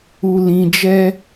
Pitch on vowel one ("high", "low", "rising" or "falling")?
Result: low